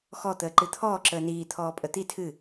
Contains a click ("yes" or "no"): yes